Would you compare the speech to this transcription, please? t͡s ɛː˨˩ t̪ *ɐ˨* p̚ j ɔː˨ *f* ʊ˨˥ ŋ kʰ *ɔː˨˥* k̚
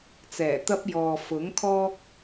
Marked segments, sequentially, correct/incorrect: incorrect: ɐ˥, correct, incorrect: ɔː˥

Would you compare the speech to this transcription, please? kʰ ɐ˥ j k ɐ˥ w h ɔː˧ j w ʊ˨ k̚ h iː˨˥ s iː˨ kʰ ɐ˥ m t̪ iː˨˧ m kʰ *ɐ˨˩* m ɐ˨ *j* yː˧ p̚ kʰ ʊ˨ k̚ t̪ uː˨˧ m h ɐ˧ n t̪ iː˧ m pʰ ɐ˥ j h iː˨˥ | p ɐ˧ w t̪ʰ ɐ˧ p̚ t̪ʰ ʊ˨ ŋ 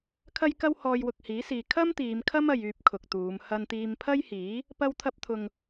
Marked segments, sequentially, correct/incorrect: incorrect: ɐ˥, correct

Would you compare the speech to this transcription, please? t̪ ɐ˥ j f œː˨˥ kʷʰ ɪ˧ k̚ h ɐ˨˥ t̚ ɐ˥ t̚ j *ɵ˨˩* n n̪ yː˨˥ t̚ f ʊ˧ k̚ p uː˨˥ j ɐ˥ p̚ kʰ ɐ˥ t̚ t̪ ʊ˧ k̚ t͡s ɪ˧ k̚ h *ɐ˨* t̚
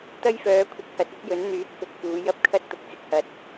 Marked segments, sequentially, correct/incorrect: incorrect: ɵ˨˥, correct

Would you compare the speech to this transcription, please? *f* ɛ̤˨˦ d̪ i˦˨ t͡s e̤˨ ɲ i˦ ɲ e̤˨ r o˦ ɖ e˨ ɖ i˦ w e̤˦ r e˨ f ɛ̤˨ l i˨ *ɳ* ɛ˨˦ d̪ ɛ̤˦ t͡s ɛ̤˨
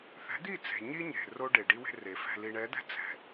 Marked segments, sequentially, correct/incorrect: incorrect: θ, correct

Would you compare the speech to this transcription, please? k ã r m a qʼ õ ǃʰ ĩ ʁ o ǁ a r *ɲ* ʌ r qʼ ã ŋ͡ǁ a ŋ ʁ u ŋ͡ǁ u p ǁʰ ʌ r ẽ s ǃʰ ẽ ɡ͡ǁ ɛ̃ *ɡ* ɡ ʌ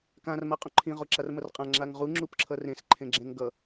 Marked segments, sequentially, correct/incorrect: incorrect: m, incorrect: ŋ

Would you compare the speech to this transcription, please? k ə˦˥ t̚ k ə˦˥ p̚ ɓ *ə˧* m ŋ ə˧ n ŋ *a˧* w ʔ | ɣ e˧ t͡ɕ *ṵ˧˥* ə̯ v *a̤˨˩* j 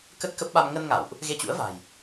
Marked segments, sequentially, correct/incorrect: incorrect: a˧, incorrect: a̰˧˨, correct, correct

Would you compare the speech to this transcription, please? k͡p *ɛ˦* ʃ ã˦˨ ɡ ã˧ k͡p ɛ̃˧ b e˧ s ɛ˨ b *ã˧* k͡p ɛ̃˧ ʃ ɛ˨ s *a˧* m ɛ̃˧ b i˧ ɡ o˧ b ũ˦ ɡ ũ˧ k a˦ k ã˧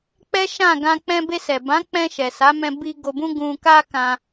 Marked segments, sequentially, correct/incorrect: correct, incorrect: ã˨˦, incorrect: a˨˦

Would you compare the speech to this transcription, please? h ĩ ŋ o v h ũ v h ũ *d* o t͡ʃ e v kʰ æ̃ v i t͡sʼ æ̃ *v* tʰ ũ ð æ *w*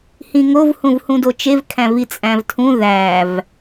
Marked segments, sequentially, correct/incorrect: correct, correct, incorrect: v

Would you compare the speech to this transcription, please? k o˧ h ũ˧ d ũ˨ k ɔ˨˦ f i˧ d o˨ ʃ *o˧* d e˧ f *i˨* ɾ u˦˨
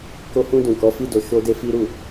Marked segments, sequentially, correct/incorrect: correct, incorrect: i˦

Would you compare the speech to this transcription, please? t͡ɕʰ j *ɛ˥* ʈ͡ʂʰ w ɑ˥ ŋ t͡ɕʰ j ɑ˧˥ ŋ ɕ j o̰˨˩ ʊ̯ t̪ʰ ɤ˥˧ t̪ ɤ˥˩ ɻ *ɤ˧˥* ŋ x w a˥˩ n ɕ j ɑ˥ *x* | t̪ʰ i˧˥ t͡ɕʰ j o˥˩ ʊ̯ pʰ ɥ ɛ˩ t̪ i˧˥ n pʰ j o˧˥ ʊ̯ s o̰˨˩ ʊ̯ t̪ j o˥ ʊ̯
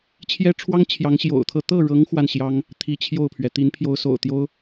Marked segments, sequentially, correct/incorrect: correct, correct, incorrect: ŋ

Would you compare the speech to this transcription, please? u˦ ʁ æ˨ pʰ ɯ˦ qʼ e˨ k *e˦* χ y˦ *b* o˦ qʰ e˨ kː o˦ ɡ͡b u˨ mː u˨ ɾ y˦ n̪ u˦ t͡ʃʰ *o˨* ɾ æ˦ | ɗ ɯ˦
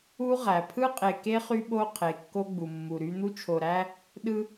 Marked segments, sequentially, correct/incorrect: correct, incorrect: ɓ, correct

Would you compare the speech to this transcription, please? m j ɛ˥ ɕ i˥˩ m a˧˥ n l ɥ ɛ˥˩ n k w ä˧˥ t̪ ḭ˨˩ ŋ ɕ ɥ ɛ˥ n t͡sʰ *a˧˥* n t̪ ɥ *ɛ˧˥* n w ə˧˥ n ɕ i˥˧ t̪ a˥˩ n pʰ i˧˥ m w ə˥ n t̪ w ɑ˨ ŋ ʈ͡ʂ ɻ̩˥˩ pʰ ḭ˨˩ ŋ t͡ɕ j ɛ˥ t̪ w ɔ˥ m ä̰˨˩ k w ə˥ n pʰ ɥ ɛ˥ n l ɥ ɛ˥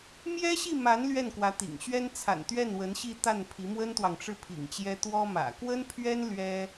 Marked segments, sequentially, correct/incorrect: incorrect: a̰˨˩, incorrect: ɛ˥˩

